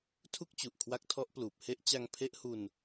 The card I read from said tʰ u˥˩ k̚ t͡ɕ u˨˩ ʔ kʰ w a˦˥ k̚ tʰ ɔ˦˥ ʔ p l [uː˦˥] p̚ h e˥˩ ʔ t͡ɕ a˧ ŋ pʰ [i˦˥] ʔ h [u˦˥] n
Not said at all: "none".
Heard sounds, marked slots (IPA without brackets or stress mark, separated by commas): uː˨˩, e˦˥, u˧